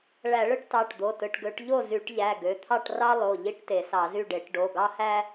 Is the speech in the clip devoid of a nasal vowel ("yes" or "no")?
yes